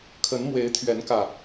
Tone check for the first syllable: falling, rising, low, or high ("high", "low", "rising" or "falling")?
rising